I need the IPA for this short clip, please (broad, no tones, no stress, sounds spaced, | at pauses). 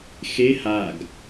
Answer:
x e h a ɡ